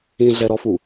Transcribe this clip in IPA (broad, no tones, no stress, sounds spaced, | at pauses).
ĩ ɮ ɛ ɾ ɔ f u